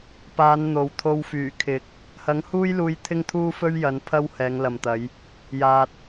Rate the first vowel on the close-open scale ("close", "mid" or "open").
open